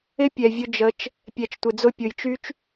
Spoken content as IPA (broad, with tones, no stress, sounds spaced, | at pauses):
ɪ˦ pʲ ɛ˨ vʲ ʊ˧ d͡ʒ ə˨˦ t͡ʃ | pʲ ɛ˨ t͡ʃ tʷ ɪ˨ d͡z ʊ˧ pʲ ʊ˨ j t͡ʃ y˦ t͡ʃ